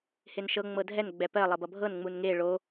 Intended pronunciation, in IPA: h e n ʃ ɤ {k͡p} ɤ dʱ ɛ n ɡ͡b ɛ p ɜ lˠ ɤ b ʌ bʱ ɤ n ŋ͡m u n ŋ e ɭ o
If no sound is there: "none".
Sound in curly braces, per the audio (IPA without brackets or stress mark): ŋ͡m